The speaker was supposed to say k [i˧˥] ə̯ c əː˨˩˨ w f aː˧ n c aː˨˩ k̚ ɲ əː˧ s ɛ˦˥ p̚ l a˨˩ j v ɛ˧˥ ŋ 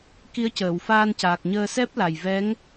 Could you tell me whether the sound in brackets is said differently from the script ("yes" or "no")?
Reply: no